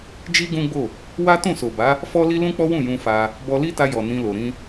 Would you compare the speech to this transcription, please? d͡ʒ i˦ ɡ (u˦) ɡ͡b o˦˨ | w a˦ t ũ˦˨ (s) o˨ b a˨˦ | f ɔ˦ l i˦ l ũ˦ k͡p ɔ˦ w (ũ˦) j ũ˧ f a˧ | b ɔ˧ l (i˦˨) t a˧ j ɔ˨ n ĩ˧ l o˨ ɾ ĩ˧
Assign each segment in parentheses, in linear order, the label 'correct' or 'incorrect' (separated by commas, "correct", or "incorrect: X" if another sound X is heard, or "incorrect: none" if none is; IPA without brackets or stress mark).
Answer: incorrect: ũ˦, correct, incorrect: ũ˦˨, incorrect: i˦